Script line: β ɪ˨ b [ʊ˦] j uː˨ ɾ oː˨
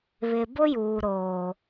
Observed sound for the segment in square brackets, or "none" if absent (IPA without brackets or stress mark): ʊ˦